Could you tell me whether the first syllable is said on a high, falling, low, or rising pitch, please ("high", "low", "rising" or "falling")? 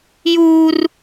high